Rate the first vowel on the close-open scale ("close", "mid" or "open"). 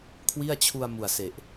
close